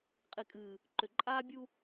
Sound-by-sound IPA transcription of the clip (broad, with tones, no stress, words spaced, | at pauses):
qʼi˨kʼɨː˨ | ǃʏ˨ǃʼaː˦ bʲu˦